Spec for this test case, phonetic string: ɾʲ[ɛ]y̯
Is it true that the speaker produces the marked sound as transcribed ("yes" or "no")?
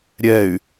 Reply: yes